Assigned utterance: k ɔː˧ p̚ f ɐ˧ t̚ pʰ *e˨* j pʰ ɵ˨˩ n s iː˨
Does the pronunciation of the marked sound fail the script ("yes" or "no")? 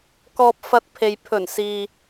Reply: no